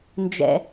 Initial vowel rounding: unrounded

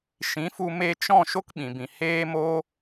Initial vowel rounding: unrounded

